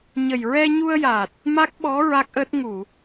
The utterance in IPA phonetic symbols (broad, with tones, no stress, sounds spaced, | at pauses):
ɲ ə˨˩ j ɹ ɛ˧ ɲ u˧ ə̯ j a˨˩ t̚ | m a˦˥ k̚ ɓ ɔ˧˥ ɹ a˦˥ k̚ ʔ əː˦˥ t̚ ŋ u˨˩˨